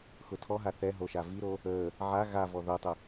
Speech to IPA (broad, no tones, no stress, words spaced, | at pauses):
xʊtʰɔɦa θɛ ɦoʃaviɾo | əː | ʕa ɣavɔ ðotˤʊ